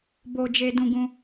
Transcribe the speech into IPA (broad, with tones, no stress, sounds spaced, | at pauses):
b o˧ d͡ʒ e˧ d ũ˧ ɡ ũ˧